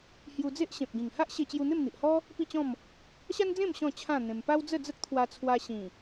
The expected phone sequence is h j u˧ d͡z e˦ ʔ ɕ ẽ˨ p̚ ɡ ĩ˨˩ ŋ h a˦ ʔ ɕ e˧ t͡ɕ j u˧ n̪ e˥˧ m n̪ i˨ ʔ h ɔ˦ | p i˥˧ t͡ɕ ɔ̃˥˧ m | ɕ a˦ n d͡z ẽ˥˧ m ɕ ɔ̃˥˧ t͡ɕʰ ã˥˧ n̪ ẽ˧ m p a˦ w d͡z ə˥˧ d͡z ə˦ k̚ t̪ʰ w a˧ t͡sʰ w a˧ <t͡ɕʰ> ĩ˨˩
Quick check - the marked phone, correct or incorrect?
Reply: incorrect